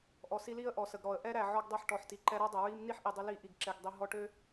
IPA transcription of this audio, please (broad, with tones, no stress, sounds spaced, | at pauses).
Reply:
ʔ ɔ˨ s i˧ l i˦ ə̯ ʔ ɔ˨ s ə˨ ɡ ɾ ɔ˨ ə̯ ʔ ɛ˦ ɾ æ˨ ʕ ɔ˧ ɡ dˤ ɛ˧ ħ ʈ ɔ˨ ħ t i˨ ǃ ɛ˧ ɾ ɔ˦ dˤ ə˨ ɹ i˧ m n i˦ ħ ʔ i˨ dˤ ə˧ l i˧ ʔ i˨ ɡ ǁ ɛ˧ ɡ dˤ i˧ ɦ ɔ˧ ʈ ø˦